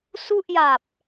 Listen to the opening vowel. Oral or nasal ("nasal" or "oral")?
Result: oral